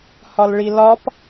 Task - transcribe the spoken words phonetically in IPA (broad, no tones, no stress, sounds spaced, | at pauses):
h ɒ l ɭ i l ɒ p